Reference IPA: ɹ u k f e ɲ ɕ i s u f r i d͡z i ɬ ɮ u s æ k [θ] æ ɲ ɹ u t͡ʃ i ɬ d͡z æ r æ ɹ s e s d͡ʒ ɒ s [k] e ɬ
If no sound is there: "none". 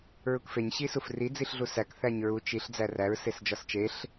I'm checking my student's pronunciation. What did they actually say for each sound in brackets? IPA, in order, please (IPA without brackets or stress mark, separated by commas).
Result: θ, t͡ʃ